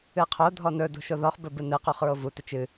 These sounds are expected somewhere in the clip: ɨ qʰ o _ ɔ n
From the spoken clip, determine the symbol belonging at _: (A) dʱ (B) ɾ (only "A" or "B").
A